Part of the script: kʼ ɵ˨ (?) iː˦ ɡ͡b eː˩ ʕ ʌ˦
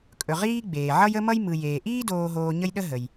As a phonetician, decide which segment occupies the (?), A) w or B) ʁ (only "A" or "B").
B